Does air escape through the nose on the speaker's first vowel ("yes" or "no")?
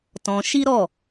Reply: yes